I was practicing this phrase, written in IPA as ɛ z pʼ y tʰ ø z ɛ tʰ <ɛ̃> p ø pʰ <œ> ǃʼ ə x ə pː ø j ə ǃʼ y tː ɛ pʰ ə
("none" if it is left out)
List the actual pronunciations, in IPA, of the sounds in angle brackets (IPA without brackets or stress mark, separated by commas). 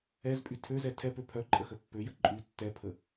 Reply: ɛ, œ